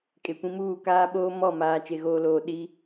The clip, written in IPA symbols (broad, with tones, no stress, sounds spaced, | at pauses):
kʼ e˨ kʷ ĩ˦ m uː˦˨ k aː˦ ɓ oː˦ m ɔ˦˨ m aː˨ t͡ʃ e˨ ɣ oː˨ l oː˨ ɗ i˦